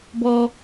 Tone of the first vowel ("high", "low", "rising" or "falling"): high